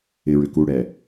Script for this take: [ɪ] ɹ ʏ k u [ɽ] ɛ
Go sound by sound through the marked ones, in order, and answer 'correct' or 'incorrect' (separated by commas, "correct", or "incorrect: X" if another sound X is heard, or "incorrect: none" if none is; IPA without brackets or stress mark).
correct, correct